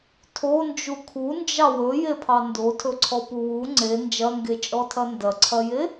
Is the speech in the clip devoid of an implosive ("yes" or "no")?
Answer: yes